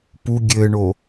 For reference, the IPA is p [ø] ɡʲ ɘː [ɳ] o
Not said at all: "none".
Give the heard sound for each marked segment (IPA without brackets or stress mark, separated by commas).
u, ɳ